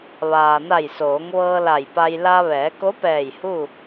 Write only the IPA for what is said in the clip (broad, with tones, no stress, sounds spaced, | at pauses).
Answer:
ʋ aː˩ n a˧˩ j s oː˩˧ ŋ ʋ ɤː˧ l a˧˩ j p a˧ j l a˧ ʋ ɛː˩˧ k o˧˥ p ɛː˧˩ j h u˥˨